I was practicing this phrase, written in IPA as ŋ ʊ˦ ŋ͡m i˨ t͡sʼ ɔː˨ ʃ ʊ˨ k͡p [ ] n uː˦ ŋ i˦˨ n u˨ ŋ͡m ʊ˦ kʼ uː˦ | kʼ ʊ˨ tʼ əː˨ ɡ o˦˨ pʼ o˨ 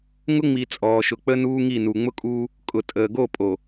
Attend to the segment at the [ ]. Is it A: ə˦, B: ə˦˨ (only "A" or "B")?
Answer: A